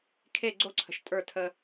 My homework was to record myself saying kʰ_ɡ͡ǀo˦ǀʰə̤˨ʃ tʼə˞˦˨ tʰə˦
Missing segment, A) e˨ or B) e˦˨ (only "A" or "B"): B